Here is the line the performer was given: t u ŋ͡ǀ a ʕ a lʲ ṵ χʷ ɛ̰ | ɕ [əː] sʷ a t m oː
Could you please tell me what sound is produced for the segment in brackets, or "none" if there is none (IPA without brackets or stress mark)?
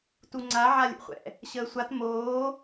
əː